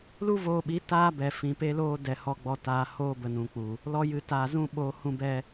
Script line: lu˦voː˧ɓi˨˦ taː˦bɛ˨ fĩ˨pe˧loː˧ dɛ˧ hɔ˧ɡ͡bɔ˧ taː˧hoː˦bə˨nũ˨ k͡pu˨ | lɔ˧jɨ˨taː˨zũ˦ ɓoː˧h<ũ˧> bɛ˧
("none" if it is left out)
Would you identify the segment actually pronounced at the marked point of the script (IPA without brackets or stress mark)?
ũ˧